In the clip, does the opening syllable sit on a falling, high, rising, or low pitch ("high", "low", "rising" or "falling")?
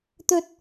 high